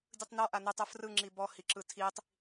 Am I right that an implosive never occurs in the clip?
yes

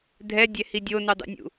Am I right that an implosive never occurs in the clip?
yes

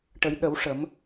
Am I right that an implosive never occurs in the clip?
no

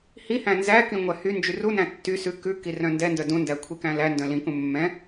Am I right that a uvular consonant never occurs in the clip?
yes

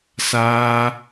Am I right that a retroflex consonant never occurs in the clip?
yes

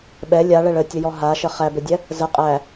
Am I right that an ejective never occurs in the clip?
no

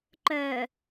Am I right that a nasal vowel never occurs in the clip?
yes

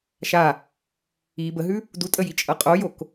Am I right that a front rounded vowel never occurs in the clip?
yes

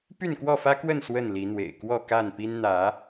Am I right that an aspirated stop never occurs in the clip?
yes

